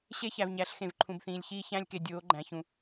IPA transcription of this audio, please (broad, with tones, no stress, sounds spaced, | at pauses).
ɕ e˦ ç æ˨ v ɲ æ˨˦ ɬ x ẽ˨ v ǃʰ ũ˨ b θ ĩː˨ lʲ ç iː˦ ç æ̃˦ lʲ k e˨ dʲ oː˨˦ ɡ͡ǃ æ̃˨ ç ũ˨